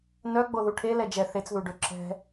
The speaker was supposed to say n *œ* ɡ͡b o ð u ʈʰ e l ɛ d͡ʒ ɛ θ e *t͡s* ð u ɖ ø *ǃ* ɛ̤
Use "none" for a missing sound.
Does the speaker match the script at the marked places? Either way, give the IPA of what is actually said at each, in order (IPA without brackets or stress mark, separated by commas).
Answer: œ, t͡s, ǁ